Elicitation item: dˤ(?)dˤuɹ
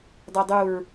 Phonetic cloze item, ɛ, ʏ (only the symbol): ɛ